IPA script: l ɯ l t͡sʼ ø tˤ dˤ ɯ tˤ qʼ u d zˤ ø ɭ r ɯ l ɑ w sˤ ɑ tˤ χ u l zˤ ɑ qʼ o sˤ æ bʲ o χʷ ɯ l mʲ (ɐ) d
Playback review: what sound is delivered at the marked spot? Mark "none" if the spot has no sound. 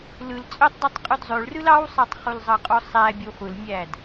æ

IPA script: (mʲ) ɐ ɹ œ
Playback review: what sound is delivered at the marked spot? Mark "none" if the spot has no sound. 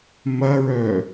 m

